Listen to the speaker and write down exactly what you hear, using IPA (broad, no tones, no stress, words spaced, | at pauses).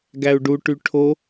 ɡæu̯ɖuʈy ʈʰo